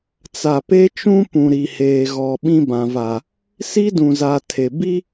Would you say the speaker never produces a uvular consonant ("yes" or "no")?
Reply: yes